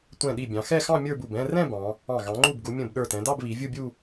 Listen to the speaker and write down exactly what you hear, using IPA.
tʷɛ̃˧˩ɗi˧˩ bʲɑ̃˩˧xɛ˥˧xɑ̃˥˧ mʲə˞˥˧bu˧˩b ɛ̃˥˧rɛ̃˥˧ bɑ̃˩˧ | ɑ̃˧˩ ɣɑ̃˩˧ŋ͡ǃu˧˩bɡu˩˧ mʲə̃˧˩b ɗə˞˧˩tɛ̃˩˧dɑ˥˧b βi˩˧ vʲu˥˧bʲu˥˧

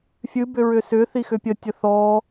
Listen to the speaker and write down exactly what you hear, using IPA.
fʲɨbʏ ɹʏsʏθi xʏpʲətʲə θɔ

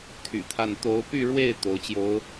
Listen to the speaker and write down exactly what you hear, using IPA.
t̪ʰy̰˨˩t̪ʰa˥˩n t̪o˧˥ʊ̯py˥˧ɻwe˥˩ɪ̯ t̪o˧˥ʊ̯t͡ɕjo˧˥ʊ̯

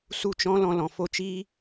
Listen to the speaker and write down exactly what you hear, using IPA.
su˦˨t͡ʃɔ̃˦ lɔ̃˦lɔ̃˧ fo˦t͡ʃiː˦

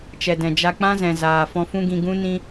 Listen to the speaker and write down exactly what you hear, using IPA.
t͡ʃɛ˨dɛ̃˨ d͡ʒa˧k͡pã˦zɛ̃˨ zaː˨ fɔ̃˧fũ˦ɡĩ˧ɡũ˦ nĩ˧

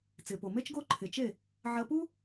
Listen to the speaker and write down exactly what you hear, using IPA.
t͡sɪː˩po˩me˥t͡ʃɡo˥ ǃʰɪ˩t͡ʃe˥˩ | ʕɐ˧pu˥

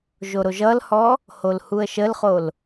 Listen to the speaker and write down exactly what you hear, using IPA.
ʒoɾoʒʌlhɔ | holhuə̯ʃəlχol

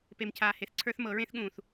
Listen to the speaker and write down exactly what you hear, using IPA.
pe˧mcʰaː˧ he˧θǀʰə˞˦θmɤ˨˦ ɹẽ˦θɠũː˨θ

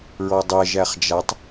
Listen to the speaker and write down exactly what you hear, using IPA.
ɹɔdˤɛ ʒæχd͡ʒatˤ

